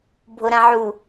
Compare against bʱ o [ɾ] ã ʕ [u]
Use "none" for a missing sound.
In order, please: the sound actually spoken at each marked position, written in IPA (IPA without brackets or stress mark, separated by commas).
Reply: ɾ, u